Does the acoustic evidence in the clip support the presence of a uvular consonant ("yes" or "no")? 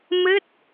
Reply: no